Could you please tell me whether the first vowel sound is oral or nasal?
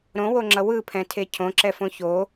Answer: nasal